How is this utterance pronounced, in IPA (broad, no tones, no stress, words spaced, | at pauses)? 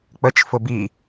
k͡pət͡ʃ fʊbi